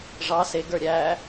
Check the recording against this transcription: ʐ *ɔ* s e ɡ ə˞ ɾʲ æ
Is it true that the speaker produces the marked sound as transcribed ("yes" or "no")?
no